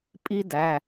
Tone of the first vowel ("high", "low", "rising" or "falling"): high